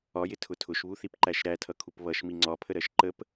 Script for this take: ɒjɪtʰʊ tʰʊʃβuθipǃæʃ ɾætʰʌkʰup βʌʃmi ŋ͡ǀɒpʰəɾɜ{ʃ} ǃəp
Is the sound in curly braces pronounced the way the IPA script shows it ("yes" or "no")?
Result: yes